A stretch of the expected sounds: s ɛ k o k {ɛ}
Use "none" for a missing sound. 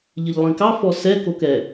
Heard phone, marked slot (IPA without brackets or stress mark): ɛ